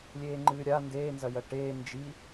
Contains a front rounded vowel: no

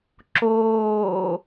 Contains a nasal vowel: no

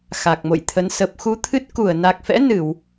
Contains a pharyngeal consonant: no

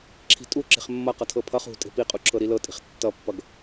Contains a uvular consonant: yes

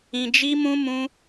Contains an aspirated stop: no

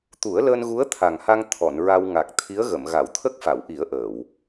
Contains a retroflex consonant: no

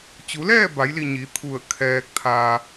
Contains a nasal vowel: no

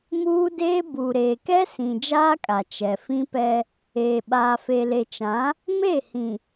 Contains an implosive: yes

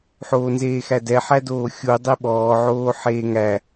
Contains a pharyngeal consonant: yes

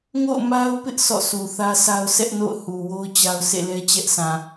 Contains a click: no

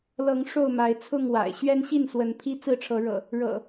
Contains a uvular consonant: no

